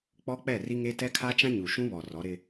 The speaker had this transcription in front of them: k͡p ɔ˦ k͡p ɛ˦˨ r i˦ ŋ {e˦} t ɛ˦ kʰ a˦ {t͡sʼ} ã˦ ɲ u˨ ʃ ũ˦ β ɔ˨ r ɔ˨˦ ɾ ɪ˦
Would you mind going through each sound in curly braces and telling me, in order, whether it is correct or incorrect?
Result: correct, incorrect: t͡ʃ

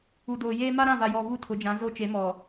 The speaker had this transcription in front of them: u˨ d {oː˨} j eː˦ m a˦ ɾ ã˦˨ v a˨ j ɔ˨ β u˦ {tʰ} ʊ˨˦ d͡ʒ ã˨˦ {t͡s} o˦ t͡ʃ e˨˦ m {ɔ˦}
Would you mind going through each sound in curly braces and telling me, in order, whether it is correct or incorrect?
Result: correct, correct, incorrect: z, incorrect: ɔ˨

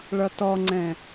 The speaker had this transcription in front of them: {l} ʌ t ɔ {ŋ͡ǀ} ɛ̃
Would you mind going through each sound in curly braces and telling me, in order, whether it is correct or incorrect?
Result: incorrect: ɭ, correct

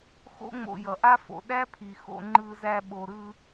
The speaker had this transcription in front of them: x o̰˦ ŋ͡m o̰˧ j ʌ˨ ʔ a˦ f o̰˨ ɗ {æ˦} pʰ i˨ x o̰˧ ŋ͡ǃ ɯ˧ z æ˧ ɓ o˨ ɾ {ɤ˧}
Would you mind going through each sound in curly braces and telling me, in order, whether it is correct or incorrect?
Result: correct, incorrect: ɯ˧

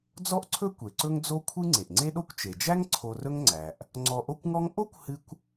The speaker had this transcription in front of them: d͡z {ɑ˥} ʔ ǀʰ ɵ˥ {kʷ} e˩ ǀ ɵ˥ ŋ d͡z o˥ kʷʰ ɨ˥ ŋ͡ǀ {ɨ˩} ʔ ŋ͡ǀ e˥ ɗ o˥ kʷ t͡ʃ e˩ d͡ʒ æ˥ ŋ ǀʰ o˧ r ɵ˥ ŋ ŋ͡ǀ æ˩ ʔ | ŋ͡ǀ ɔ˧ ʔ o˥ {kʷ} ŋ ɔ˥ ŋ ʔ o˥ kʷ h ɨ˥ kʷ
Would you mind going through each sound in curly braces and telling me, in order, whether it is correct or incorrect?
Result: incorrect: ɔ˥, correct, incorrect: e˩, correct

